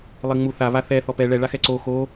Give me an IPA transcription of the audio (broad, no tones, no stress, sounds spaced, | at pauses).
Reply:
lˠ i ŋ͡m u θ a β a θ ɛ θ ɔ p ɛ ɭ ɛ ɭ a x ɛ ǀ o x o